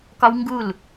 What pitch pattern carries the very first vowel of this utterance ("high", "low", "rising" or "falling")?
high